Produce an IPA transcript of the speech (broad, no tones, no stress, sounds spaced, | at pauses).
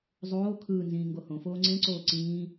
zˤ oː kʰ ɯː n z ĩː ŋ ɡ o h õ f oː ŋ͡ǀ ẽ ǀ oː ǀ ĩː